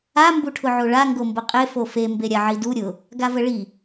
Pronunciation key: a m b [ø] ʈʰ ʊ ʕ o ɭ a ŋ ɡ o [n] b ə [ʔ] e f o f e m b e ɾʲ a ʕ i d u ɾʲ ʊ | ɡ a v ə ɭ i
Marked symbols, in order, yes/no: no, no, no

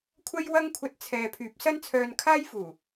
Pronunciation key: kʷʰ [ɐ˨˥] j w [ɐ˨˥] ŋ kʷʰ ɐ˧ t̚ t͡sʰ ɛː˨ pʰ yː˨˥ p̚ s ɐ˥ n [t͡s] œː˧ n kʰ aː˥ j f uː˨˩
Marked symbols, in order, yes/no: no, no, no

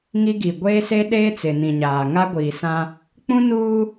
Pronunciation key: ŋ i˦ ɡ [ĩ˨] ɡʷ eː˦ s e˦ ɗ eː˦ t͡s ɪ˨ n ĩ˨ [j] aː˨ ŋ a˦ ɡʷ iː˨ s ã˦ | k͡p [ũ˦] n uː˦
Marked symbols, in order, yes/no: no, no, yes

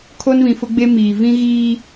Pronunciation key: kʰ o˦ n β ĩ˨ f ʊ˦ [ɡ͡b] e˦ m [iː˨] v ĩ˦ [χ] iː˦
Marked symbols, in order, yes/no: yes, yes, no

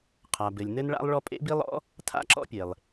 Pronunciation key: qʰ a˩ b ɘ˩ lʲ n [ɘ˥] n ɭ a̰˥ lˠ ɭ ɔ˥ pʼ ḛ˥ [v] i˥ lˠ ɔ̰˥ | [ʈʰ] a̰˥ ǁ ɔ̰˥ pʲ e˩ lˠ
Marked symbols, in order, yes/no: yes, no, no

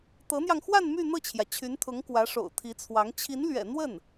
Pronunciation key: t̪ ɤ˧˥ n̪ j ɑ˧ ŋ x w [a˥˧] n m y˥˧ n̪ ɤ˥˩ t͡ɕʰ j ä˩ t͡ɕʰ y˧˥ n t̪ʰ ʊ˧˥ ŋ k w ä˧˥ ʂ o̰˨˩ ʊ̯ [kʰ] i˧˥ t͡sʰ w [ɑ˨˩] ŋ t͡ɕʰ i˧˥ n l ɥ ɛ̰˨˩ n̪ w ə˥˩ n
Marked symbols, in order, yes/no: yes, no, no

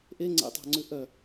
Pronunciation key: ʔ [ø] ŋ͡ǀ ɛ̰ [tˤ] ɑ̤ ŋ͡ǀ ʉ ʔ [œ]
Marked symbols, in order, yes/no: no, yes, yes

